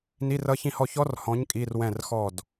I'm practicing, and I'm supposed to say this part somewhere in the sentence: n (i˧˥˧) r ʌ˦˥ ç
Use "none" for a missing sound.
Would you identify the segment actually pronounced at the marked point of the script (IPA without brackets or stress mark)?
i˧˥˧